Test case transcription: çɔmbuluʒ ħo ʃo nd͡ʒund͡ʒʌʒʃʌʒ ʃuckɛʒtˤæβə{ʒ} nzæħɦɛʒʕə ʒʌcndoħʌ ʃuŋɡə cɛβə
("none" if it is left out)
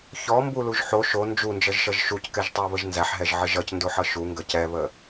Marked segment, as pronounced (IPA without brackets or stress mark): ʒ